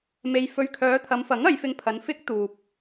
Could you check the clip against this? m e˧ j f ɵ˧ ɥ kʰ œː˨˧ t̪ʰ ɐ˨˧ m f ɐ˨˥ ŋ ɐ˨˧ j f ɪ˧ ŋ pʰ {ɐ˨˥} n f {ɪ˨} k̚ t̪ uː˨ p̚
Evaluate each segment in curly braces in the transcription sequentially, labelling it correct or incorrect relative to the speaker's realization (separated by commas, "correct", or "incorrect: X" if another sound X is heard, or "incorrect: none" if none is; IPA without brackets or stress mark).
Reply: incorrect: ɐ˨˧, incorrect: ɪ˥